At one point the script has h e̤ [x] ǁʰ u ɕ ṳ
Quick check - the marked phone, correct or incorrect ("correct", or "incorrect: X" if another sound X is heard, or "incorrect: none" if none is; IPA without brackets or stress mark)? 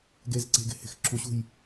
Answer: correct